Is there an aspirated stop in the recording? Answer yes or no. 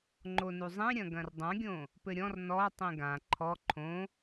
yes